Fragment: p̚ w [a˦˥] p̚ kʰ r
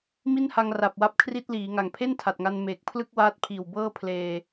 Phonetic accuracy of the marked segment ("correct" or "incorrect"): correct